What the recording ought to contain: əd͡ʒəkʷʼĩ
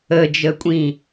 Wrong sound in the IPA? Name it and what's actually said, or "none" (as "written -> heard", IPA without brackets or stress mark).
none